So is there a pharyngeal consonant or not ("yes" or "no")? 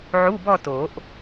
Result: yes